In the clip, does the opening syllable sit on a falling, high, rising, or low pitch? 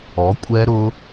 rising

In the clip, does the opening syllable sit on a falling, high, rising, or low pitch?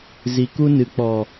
low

